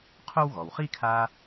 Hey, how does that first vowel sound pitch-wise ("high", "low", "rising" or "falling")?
high